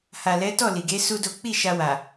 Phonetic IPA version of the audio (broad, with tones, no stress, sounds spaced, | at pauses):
h a˨ l ɛ˨˦ t ɔ˦˨ l i˨ ɡ e˨˦ s u˦ d o˦ k͡p i˦˨ ʃ a˧ w a˨